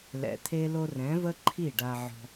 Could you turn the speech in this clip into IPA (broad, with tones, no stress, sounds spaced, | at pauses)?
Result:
l ɛ̰˨ t̪ʰ e˧ l o˧ r ɛ̃˨˦ v ə˦ ǃʰ i˦˨ ɖ a˧ ʕ ɔ̤˧